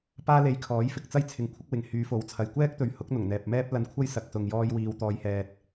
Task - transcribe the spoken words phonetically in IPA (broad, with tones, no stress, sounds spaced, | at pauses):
p aː˥ l e˧ j kʰ ɔː˨˥ j f ɪ˨˥ k̚ t͡s ɐ˥ j t͡sʰ ɪ˨˧ ŋ kʷʰ ɪ˨˥ k̚ w ɪ˨ ŋ h yː˨˧ f o˨˥ w t͡sʰ ɐ˨ j kʷ ɛː˥ k̚ t̪ ɵ˨˧ ɥ h ʊ˨˥ k̚ n̪ ʊ˨˩ ŋ n̪ ɛː˨ p̚ m ɛː˥ p̚ l ɐ˧ n kʷʰ ɐ˥ j s ɐ˨ k̚ s ʊ˨ ŋ j ɔː˧ j w iː˨ w t̪ ɔː˨ j h ɛː˨ t̚